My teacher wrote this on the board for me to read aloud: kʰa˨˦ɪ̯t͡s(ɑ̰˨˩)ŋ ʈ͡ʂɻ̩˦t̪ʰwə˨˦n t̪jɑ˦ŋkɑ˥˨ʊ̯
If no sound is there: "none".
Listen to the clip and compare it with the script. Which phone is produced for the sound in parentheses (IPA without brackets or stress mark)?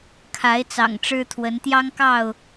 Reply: ɑ̰˨˩